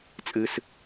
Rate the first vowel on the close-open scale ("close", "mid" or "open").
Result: close